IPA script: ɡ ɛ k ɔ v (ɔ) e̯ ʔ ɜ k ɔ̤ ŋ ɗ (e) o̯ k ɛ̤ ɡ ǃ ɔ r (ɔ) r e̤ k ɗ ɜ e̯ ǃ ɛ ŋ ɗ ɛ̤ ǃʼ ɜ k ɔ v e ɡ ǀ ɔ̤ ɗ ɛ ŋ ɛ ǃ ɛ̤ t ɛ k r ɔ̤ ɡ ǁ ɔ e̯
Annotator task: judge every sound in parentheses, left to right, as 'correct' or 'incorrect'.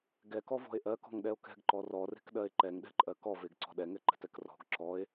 incorrect: ɔ̤, incorrect: ɛ, correct

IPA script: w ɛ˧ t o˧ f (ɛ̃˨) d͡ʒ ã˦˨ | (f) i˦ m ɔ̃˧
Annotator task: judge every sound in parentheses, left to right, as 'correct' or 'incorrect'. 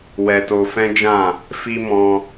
incorrect: ɛ̃˦, correct

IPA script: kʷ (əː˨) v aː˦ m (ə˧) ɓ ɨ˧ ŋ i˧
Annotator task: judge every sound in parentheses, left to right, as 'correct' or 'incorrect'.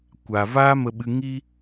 incorrect: aː˨, correct

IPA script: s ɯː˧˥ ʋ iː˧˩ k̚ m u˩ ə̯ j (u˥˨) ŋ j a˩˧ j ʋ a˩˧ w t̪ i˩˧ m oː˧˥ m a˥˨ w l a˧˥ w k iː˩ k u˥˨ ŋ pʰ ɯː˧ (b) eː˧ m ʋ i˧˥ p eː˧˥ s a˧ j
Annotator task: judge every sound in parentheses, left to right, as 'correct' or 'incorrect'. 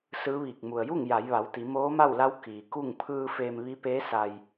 correct, incorrect: f

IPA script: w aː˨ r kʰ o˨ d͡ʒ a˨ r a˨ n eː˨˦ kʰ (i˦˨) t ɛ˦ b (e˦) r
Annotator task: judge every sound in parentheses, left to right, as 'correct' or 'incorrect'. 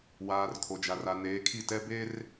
correct, correct

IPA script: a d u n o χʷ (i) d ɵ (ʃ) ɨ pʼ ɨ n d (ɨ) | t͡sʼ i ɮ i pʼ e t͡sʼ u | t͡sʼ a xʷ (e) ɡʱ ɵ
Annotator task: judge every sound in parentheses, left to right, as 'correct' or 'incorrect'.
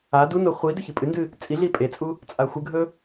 correct, incorrect: ç, correct, incorrect: ɨ

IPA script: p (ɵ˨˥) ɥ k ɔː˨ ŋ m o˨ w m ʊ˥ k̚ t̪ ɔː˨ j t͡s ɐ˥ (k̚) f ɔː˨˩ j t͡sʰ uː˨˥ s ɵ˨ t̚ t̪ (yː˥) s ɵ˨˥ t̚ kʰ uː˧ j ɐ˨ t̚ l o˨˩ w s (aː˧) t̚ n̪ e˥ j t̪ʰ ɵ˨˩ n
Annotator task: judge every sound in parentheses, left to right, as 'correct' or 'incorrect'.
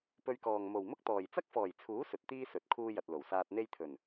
incorrect: ɵ˧, correct, incorrect: iː˥, correct

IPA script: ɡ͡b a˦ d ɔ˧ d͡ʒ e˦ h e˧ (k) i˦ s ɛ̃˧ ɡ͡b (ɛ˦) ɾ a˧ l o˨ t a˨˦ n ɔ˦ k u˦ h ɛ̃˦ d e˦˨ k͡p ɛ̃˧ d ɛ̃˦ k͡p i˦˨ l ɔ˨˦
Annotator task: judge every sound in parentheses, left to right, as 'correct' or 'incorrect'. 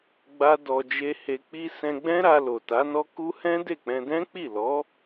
incorrect: k͡p, incorrect: ɛ̃˦

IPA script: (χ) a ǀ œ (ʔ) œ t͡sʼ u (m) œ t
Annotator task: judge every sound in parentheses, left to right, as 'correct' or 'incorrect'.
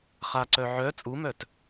correct, incorrect: ʕ, correct

